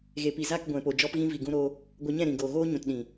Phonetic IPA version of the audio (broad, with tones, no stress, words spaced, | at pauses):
ɣe˨pi˨za˦˨k ɡʷɛ̃˨po˨ d͡ʒɔ˧pɣĩ˧vi˨ ɡũ˧ ɾo˧ | ɡʷa˧ɲɛ̃˦˨ɾĩ˨ɡoː˨ ɣoː˦ɲũ˨tɗĩ˨